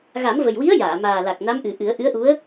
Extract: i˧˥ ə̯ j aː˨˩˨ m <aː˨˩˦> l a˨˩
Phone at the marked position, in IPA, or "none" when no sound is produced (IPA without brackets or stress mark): aː˨˩